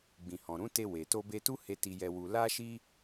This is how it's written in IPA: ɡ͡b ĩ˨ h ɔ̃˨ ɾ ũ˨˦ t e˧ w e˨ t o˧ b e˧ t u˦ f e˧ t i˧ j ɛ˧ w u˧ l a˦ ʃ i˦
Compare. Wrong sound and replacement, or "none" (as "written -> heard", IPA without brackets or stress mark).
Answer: f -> h